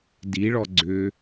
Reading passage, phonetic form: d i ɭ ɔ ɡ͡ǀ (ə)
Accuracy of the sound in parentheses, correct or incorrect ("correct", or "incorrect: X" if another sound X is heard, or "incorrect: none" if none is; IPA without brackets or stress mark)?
incorrect: ʏ